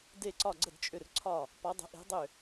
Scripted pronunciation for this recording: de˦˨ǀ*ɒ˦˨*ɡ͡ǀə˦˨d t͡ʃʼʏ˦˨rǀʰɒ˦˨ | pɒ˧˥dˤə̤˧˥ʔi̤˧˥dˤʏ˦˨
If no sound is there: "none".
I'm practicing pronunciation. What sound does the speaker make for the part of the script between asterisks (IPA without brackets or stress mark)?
ɒ˦˨